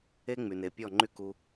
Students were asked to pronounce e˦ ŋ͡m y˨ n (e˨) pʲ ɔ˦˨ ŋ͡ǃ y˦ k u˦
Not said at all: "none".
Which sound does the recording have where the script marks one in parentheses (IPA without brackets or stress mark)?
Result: e˨